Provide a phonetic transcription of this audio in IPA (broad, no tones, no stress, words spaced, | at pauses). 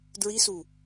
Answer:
dɹisu